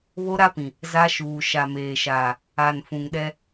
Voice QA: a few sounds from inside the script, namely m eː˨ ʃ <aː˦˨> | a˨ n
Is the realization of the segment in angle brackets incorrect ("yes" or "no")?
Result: yes